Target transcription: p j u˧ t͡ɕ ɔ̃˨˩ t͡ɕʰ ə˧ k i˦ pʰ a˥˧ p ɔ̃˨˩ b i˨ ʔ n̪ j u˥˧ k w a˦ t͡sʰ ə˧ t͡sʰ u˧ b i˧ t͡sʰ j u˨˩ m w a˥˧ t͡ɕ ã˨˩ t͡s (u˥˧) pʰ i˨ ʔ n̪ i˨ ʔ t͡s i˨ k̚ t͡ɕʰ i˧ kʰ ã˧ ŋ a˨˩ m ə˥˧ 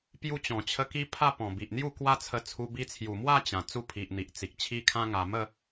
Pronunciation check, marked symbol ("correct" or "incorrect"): correct